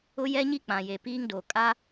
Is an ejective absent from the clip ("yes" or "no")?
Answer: no